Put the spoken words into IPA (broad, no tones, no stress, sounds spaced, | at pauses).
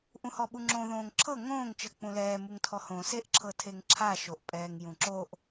ʔ ũ h ɔ ɓ u ŋ͡ǁ õ ð õː ŋ ǁʰ ɤ ŋ õː ŋ t͡ʃ ɤ k͡p ũ l ɛː m u ŋ tʰ ɔ h õ s e ʔ ǁʰ ɤ tʰ e ŋ ǁʰ a ʃ o ʔ pʼ ɛː ŋ j ũ ǁ o ʔ